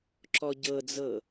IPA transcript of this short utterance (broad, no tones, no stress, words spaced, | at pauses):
ǁɔɟɤd͡zɤ